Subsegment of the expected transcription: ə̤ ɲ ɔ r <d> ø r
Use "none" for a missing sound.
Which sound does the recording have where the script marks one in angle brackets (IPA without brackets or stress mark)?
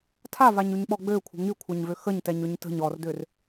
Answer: d